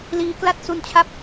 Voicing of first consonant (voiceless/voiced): voiced